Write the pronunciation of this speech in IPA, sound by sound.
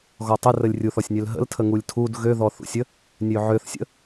ɣ ɔ tˤ ə r ə lʲ rʲ u θ ɔ sʲ nʲ ø l ɦ ə̰ l tʰ ə ŋ u lʲ tʰ u d ɣ ø ð ɔ θ ṵ sʲ ə | nʲ ø ʕ ø θ sʲ ə̰

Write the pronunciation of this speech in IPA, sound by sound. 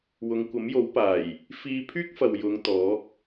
w ʊ˨˧ ŋ kʷ ɐ˨˥ m j o˨˥ w p aː˨˩ j | f iː˧ pʰ yː˥ k̚ f ɐ˨ w j ʊ˨˧ ŋ t̪ ɔː˨˥ k̚

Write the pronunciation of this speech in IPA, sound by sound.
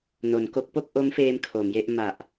n o˩˦ n k o˦˥ k̚ p o˥˩ k̚ ʔ o˦˥ m f eː˧ m kʰ o˩˦ m j e˥˩ ʔ m a˨˩ ʔ

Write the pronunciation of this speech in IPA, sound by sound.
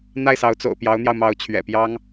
n̪ a˥˩ ɪ̯ s ɑ˧˥ ʊ̯ t͡s o̰˨˩ ʊ̯ p j ɑ˧˥ ʊ̯ n̪ j ɑ˧ ʊ̯ m ɑ˧˥ ʊ̯ t͡ɕʰ ɥ ɛ̰˨˩ p j ɑ˥ ŋ

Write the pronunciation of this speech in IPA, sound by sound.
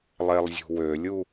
lˠ e lˠ zʲ ṳ w ø lʲ u

